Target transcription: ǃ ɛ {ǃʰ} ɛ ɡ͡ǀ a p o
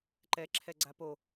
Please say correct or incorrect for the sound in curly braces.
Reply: incorrect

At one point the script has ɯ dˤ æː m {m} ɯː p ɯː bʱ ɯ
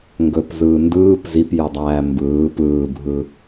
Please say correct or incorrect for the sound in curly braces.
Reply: incorrect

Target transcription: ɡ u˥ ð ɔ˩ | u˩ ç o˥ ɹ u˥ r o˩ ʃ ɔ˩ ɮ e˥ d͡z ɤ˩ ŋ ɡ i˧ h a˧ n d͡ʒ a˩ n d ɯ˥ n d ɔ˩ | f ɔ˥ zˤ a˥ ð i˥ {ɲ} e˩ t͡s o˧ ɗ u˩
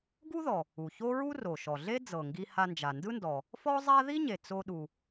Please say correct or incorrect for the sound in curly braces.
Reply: correct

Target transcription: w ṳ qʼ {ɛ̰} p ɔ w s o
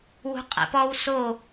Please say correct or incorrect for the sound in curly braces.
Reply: correct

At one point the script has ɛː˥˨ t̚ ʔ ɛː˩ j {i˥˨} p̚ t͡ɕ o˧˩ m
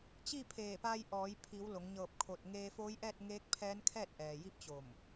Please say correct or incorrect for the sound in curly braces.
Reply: correct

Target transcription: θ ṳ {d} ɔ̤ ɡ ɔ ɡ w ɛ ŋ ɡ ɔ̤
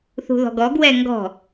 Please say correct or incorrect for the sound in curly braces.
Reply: incorrect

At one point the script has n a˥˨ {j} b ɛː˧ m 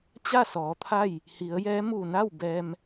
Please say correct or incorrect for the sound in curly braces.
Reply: incorrect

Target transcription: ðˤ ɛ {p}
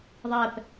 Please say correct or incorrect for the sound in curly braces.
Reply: correct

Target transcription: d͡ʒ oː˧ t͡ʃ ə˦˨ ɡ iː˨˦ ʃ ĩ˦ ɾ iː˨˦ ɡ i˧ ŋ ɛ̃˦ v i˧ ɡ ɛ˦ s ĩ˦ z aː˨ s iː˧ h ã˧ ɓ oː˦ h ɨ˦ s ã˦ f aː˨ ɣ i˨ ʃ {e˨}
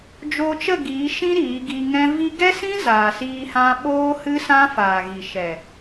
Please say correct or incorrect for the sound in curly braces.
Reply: incorrect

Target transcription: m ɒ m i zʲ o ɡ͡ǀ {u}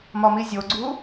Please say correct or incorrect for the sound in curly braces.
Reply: correct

